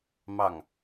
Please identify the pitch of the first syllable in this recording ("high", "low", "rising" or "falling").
falling